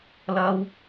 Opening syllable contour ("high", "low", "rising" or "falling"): high